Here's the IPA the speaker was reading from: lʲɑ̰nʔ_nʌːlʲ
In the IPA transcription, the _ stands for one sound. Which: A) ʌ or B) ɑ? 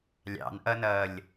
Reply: A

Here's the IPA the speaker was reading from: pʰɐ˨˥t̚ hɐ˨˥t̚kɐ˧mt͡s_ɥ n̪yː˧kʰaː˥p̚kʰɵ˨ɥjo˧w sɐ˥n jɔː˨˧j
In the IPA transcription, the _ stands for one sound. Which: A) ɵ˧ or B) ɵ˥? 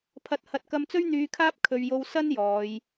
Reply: B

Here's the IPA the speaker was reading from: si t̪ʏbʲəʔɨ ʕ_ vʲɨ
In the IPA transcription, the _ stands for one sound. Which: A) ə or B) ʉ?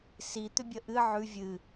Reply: B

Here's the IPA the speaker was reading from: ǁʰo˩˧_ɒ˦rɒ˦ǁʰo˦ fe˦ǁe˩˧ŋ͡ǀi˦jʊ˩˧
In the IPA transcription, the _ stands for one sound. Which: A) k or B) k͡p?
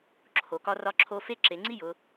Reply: A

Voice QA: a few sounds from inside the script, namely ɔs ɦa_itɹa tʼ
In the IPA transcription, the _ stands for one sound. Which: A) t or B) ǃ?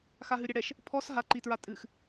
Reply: B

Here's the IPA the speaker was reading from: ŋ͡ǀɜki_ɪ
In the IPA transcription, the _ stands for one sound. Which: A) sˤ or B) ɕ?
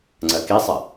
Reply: A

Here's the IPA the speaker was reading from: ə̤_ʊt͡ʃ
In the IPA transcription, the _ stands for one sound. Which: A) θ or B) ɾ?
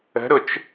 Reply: B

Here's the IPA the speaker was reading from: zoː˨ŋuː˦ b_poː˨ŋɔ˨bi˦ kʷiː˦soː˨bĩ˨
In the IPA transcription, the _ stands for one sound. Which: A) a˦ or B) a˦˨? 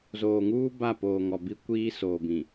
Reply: B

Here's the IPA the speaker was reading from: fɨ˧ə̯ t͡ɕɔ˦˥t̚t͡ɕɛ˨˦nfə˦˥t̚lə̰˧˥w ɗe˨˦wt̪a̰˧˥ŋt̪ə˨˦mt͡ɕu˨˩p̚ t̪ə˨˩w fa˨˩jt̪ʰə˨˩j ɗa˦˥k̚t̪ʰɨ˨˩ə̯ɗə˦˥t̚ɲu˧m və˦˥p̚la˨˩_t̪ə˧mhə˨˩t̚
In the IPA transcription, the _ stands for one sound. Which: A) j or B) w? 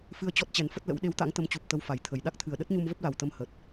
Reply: B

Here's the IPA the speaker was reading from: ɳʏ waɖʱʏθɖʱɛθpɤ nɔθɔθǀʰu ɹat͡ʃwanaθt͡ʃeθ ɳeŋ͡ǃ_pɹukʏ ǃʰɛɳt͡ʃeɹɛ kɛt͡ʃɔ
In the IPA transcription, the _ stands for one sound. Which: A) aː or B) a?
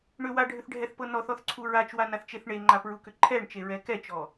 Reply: B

